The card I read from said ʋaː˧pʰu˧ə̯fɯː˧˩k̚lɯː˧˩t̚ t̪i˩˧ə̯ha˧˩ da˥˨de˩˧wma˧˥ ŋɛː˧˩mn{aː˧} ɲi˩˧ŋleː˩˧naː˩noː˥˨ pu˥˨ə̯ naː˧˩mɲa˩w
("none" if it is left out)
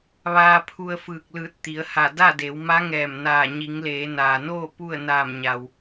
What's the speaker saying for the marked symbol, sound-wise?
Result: aː˧˩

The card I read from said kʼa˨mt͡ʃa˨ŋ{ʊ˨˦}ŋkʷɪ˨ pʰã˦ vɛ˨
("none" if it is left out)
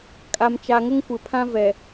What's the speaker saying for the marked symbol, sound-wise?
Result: ʊ˦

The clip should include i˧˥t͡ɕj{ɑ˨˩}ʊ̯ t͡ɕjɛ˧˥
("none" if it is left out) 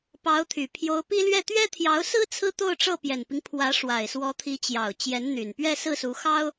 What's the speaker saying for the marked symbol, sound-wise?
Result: ɑ˨˩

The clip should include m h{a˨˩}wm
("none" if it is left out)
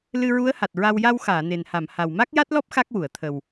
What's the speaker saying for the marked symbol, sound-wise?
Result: a˨˩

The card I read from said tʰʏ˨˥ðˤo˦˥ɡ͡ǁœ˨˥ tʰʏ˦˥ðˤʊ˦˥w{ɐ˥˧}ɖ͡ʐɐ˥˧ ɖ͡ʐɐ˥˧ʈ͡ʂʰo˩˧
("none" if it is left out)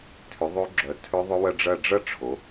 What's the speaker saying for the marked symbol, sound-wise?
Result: ɐ˥˧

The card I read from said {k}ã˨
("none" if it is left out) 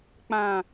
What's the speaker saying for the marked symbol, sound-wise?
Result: k͡p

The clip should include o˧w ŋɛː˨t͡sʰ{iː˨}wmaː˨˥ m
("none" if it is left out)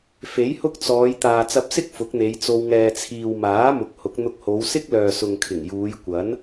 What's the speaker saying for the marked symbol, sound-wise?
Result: iː˨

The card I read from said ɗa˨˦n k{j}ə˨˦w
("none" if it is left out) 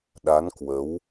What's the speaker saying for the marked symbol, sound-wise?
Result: w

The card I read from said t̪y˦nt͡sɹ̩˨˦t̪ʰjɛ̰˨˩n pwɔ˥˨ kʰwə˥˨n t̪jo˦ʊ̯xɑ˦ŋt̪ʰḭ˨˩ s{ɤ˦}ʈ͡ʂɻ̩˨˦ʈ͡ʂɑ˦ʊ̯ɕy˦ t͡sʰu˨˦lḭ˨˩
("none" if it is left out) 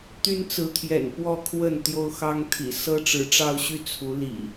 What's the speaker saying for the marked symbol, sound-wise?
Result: ɤ˦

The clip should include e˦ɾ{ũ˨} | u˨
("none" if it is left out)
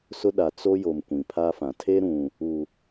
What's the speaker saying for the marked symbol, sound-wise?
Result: ũ˨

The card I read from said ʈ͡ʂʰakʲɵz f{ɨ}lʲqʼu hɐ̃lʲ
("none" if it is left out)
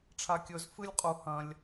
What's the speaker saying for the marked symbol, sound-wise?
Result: ɨ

